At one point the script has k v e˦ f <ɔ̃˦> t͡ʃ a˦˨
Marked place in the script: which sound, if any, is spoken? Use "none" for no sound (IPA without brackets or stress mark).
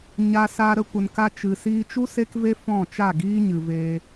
ɔ̃˦˨